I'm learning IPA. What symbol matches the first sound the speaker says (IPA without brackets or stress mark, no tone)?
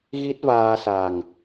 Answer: ɣ